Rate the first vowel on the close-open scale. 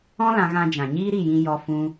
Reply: mid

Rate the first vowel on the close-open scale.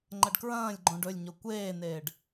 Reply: open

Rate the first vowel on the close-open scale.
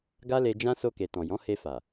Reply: open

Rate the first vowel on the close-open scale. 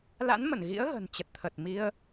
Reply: open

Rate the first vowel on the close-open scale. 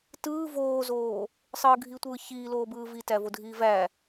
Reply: close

